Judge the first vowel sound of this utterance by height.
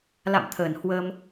low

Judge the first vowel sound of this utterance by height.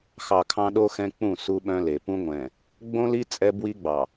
low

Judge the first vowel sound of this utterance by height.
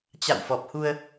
low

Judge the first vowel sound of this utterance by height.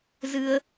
high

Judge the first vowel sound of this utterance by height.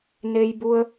mid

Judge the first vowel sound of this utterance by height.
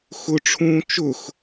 high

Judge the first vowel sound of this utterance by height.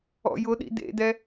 mid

